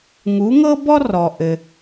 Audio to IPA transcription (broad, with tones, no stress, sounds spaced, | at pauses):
ŋ u˩˥ ŋ ɤ˥ b ɔ˥ r ɔ˩ ʔ ɘ˩